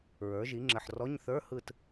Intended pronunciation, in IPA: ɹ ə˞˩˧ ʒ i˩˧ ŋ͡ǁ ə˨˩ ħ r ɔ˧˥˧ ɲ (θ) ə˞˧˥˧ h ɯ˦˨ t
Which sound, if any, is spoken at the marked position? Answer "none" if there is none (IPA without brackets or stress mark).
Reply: θ